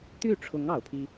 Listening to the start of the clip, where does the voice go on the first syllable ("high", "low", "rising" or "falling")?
falling